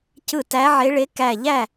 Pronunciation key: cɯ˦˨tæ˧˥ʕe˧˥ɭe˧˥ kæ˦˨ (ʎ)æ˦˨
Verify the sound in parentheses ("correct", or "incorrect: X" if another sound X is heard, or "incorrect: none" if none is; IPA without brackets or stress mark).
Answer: correct